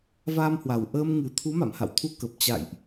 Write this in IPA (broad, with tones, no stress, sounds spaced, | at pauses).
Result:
v aː˧ m h w a˨˩ w ʔ əː˧ m ŋ ɨ˨˩ t̪ʰ u˨˦ m a̰˧˨ m h a̰˧˨ w t̪ʰ u˧ k ə˨˩ p̚ t͡ɕ a̰˧˨ j ʔ